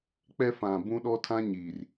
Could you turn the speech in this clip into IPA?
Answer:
k͡p ɛ˦ f ã˨ b ũ˦ ɗ ɔ˦ tʰ ã˦ ɲ iː˨ r

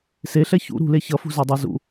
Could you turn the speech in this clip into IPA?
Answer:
s e ɬ ɛ ç ṵ ɾ ṳ l e ç ʌ f ṳ z a dˤ a z ṵ

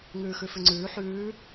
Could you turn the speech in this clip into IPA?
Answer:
ŋ ʉː x ʉ f ʉ ŋ͡ǀ ʉː ħ ʉː

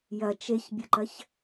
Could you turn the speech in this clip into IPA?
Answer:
j ɐ t͡ʃ e ç bʲ ə ǃ ɐ ç

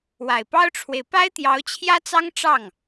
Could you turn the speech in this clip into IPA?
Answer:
w a˨˩ ɪ̯ p ɑ˥ ʊ̯ ʈ͡ʂʰ w e˨ ɪ̯ p a˥ ɪ̯ t̪ j ɑ˧˥ ʊ̯ t͡ɕʰ j ä˥ t͡s ɑ˥ ŋ ʈ͡ʂ ɑ˥˩ ŋ

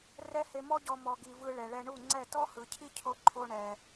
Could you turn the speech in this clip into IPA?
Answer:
r ɛ˦ h e˧ m ɔ˦ ɟ ɔ˧ m ɔ˨ ɡ i˨ v ɯ˧ ɭ ɛ˨ ɭ ɛ˧ ɳ u˦˨ ŋ͡ǀ ɛ˦˨ t ɔ˦ h ɯ˨ cʰ i˦ cʰ o˧ ǃʰ o˧ ɳ ɛ˨

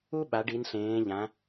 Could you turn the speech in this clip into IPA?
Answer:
u˦ ɓ a˩˧ ɖ i˩˧ n ɬ ẽː˩˧ ʎ ã˩˧

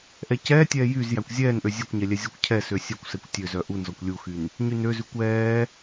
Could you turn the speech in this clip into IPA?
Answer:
ʔ ɛ c ɛː tʲ ɛː j y z j æ kʷ zʲ ɛː n ʔ ø zʲ ɛ kʷ ɲ ɛ lʲ ɛ zʲ ɔ kʷ cʰ ɛ s ø sʲ œ kʷ s ɛ kʷ tʲ ø z œ ʔ u n z ɔ kʷ lʲ u x y n | ɲ y n ø z ʉ kʷ ɛː

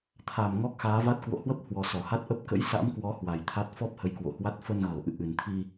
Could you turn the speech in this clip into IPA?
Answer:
t̪ʰ a˨˩ m ŋ ɔ˦˥ k̚ x aː˨˦ v a˦˥ t̚ k w o̰˧˨ h w ə˦˥ p̚ h w ɔ˨˩ s ɔ˧˩ h a˦˥ t̚ ʔ ə˦˥ p̚ k ə̰˧˥ j s a̰˧˥ m k w ɔ˨˦ h w a˨˩ j t̪ʰ a˦˥ t̚ f ɔ˦˥ p̚ h ə˨˦ j k w o̰˧˨ h w a˦˥ t̚ f ə˧ n ɣ o˧˩ ʔ ɨ̰˧˨ ʔ ɨ˨˩ n t̪ʰ i˧

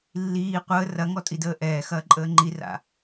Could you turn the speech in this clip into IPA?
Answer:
lː iː qʷ əː r ɐ ŋ ɔ tʼ i d əː ʔ ɛː x ɐː ǃʼ əː ŋ͡ǃ i r a̰

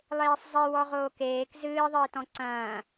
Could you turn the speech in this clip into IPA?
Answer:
lˠ eː sˤ zˤ e w ɔ ʁ oː k eː k z ɨː ðˤ ɨː t ɔ̃ ǀ ɐ̃ː

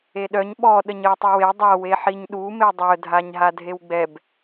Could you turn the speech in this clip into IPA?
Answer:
e ɗ œ ɲ ɓ ɔ ɗ ə ɲ ə w tˤ ə w e dˤ a w e ħ i ɲ ɗ u m e dˤ œ dʱ a ɲ ɦ a dʱ e w ɡ͡b ɛ b

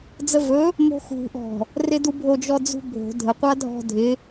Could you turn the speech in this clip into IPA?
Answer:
d͡z ə v ɵ | m o̤ x ṳ ʔ ɔ̤ | r ɪ d u bʱ o d͡ʒ ɔ d͡z ṳ bʱ o̤ dʱ ə qʷ a dʱ ɔ̤ dʱ ɪ

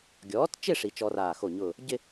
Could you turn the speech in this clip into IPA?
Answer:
ɡʲ ɔː˩˥ t t͡ʃ ɪ˥˧ ʂ i˧ t͡ʃ ɔ˧ r aː˧˩ x o˧˩ ɲ ʊː˧˩ | ɟ ɪ˥˧

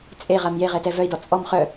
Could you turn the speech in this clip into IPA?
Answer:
t͡sʼ e ʁ a m j e ʁ ɛ t ɛ v œ i̯ d ɔ t͡sʼ ɔ m χ œ

